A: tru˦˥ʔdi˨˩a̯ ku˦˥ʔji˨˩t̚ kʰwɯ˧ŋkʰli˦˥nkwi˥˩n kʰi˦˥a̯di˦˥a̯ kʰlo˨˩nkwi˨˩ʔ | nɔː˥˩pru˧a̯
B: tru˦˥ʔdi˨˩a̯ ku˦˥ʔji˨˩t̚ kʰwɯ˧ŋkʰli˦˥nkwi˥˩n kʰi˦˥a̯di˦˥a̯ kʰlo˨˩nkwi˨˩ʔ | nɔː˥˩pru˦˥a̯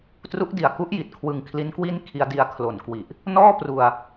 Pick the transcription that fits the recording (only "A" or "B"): A